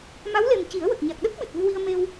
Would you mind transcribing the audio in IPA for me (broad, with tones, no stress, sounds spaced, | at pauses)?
m a˧˥ w l e˨˩ m c i˨˩˦ ə̯ w ə˨˩ k̚ ɲ a˨˩ k̚ ɗ ə˦˥ k̚ ɓ ɨ˨˩ t̚ v ɨ˧ w i˧ ə̯ m e˧ w